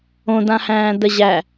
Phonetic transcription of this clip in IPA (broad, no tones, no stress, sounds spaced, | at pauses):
õ d ã h æ̃ː d ə ʑ æ